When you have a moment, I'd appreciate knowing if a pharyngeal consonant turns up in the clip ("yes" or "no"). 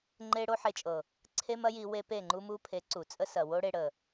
yes